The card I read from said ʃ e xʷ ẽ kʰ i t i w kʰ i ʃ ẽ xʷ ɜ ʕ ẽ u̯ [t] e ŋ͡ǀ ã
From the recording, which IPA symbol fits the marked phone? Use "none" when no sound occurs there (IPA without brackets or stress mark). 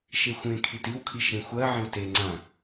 t